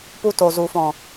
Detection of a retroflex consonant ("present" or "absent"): absent